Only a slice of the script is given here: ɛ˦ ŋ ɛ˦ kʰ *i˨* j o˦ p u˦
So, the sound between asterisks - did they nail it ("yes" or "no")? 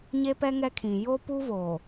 no